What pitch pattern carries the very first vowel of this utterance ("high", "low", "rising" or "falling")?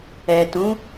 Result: low